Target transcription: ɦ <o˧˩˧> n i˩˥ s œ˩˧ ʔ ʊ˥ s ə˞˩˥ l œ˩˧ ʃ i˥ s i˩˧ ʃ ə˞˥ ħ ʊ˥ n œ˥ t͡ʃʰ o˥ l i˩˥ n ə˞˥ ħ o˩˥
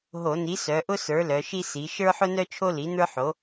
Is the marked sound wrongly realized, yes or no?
no